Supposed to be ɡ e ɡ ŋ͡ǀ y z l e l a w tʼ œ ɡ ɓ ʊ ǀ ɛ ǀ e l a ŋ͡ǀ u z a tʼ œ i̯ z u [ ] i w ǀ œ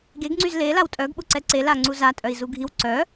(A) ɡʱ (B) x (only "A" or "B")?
A